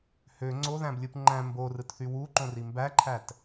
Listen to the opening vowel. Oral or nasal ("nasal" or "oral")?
oral